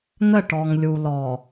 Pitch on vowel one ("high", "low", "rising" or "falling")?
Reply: falling